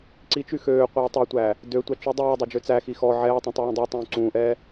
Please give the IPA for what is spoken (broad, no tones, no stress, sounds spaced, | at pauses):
ǀ i t͡ʃ y x øː qʷ ɛː tˤ ø tʷ æː | d ø tʷ ɑ t͡ʃ y dˤ ʉː dˤ ø d͡ʒ ø t͡s æ x i x ɔ ʕ ɛː tˤ ĩ tˤ u w ũ dˤ i tˤ ũː ǀ ũː ʔ ɛː